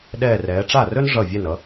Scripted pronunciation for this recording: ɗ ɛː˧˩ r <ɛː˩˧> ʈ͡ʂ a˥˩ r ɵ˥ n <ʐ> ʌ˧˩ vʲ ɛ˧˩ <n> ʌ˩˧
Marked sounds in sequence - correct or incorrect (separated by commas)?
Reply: correct, correct, correct